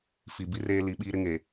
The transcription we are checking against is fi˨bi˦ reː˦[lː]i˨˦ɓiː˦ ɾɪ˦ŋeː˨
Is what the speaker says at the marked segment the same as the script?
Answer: no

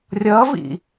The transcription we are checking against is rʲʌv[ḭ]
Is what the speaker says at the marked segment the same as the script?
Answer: yes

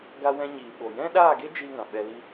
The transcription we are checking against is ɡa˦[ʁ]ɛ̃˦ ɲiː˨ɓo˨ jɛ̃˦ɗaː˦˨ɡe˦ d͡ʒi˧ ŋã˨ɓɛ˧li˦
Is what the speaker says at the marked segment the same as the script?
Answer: no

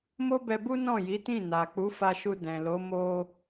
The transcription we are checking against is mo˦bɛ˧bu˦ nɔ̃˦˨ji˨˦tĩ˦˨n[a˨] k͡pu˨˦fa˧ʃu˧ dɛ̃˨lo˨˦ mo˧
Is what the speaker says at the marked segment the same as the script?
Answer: yes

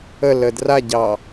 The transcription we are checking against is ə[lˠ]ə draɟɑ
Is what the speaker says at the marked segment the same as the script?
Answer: no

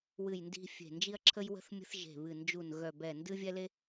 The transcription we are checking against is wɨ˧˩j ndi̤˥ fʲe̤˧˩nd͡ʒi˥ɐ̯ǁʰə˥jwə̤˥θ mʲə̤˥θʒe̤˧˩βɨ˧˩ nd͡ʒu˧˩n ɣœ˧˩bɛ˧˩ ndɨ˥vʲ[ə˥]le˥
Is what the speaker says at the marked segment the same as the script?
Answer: no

